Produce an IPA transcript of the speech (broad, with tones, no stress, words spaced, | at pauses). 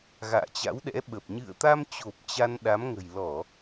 ɣa̰ː˧˨t͡ɕa̰˧˥wɗɛ̰˧˥ɓə˨˩p̚ ɲɨ̰˧˨ə̯t̪a˧mt͡ɕo˨˩p̚ t͡ɕa˧nɗa˨˦m ŋə̤˨˩jlɔ˧˩˨